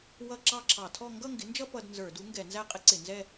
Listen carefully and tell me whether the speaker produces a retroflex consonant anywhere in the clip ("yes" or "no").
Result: no